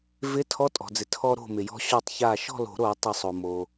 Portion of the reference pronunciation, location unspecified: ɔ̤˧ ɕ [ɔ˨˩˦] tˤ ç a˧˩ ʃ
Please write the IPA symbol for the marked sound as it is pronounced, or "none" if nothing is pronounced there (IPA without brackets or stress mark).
ɔ˧˩